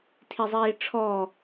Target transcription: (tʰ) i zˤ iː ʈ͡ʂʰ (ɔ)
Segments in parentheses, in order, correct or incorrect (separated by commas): correct, correct